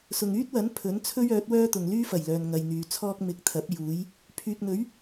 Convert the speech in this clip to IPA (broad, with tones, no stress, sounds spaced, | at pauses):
s ʊ˨ ŋ yː˥ t̚ w ɐ˨˥ n pʰ ɵ˨˥ n t͡sʰ ɵ˥ ɥ œː˨˥ t̚ w œː˥ t̪ ʊ˨ ŋ l yː˥ f ɐ˨˩ j l œː˨ n ŋ ɐ˨ j n̪ yː˨ t͡sʰ ɔː˥ k̚ m ɪ˨˥ k̚ t̪ʰ ɐ˨˥ p̚ j uː˨˥ j | pʰ yː˨ k̚ n̪ ɵ˨˥ ɥ